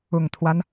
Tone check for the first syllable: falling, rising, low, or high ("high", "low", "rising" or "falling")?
low